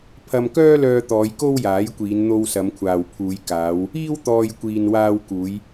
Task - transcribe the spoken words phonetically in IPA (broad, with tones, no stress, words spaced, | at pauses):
pʰɐ˧mkœː˥lœː˧t̪ɔː˨˧j ko˥wjaː˨˥jkʷiː˨˧n n̪o˧wsɐ˨˧mkʷʰaː˨wpʰuː˨˧j kaː˨˧w | iː˥wt̪ɔː˧j kʷiː˨nwaː˧wkuː˨˧j